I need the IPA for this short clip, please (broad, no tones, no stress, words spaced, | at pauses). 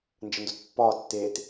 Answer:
nd͡ʒəndotpːɒː tːeːt